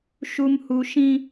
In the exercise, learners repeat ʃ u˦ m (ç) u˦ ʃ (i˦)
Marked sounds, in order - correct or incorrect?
incorrect, incorrect

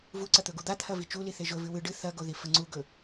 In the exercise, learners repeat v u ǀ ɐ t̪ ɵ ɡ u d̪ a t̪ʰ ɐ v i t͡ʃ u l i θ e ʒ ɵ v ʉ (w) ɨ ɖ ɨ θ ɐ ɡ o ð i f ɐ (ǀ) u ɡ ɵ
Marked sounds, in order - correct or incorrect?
correct, incorrect

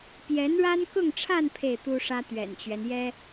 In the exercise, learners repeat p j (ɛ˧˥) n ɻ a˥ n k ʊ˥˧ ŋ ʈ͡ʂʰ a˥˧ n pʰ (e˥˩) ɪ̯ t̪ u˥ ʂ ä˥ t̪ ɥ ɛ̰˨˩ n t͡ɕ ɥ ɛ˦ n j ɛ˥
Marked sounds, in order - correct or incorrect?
correct, correct

